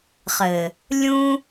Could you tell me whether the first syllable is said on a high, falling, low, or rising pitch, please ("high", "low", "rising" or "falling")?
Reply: low